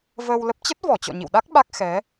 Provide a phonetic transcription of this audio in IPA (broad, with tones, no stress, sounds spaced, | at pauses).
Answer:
v əː˧ w l ə˦˥ p̚ t͡ɕ ə˦˥ t̚ v ɔ˧˩ t͡ɕ ɔ̰˧˨ ɲ ḭ˧˨ w ɗ a˦˥ k̚ ɓ a˦˥ k̚ x ɛ˨˦